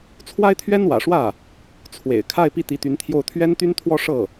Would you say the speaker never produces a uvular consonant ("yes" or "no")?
yes